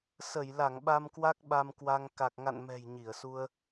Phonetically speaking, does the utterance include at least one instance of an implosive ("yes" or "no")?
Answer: yes